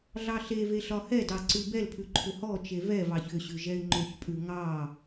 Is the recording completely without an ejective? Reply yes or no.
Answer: no